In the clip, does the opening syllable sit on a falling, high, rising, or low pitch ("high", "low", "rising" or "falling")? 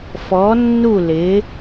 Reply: rising